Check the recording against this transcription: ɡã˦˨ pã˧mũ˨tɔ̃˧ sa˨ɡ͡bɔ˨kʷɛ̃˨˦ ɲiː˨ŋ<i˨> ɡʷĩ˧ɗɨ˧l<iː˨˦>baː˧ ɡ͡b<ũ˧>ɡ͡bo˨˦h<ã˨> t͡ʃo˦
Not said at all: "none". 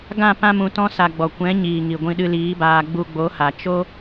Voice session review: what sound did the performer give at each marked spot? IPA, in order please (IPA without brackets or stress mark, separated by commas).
i˨, iː˨˦, u˧, a˨